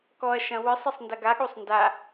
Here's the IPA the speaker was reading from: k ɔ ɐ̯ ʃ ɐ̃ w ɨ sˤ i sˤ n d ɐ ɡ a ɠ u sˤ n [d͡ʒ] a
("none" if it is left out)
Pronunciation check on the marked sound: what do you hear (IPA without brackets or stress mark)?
d